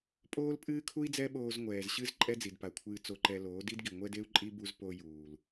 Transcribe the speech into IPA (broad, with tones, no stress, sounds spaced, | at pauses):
pʼ oː˦ l pʼ ɨː˦ kʰ u˦ i̯ d͡z ɛ˦ ɓ oː˧ z ŋʷ ɛː˨ z ɕ ɨ˦ z ǃʼ ɛ˦ d͡z i˨ d p a˨ kʷʰ ɨː˧ t͡s o˧ ǃ ɛ˧ l oː˨˦ d i˦ d ɡ i˨ ŋʷ ɛ˦ d e˦ u̯ ǃʼ i˦ b u˦ z p o˧ j uː˨ l